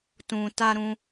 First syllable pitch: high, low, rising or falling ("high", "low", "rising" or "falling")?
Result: low